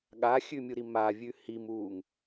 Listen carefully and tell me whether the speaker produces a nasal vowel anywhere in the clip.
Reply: no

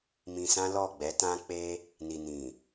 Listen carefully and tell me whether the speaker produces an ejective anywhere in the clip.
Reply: no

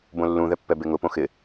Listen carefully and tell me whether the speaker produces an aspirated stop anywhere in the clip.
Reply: no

